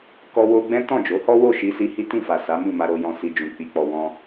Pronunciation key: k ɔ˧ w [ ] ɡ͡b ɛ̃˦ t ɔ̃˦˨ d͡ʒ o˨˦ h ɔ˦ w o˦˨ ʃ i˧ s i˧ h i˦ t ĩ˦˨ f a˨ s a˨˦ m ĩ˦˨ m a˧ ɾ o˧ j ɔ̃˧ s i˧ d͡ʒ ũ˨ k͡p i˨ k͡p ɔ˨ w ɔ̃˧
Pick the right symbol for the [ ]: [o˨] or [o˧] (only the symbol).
o˧